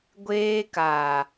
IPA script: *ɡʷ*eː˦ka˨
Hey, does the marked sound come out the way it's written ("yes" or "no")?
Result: yes